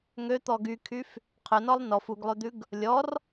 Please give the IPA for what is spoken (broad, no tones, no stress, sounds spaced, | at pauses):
ŋ ø t̪ ɔ ɡ y kʰ y f | qʰ œ n ɔ lˠ n ɔ f u ɡ lˠ ø d̪ ʉ ɡ | lʲ ɔ r